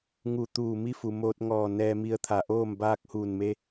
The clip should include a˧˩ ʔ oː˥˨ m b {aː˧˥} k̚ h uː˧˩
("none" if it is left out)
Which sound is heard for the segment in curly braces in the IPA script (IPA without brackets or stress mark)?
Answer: aː˧